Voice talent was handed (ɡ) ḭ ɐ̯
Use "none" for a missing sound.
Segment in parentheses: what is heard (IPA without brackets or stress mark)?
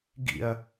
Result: ɡ